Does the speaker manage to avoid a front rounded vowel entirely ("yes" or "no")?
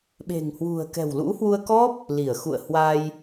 yes